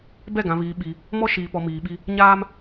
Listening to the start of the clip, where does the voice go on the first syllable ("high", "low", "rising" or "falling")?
falling